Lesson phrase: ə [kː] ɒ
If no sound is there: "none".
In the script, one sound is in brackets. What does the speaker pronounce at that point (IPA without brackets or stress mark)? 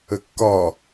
kː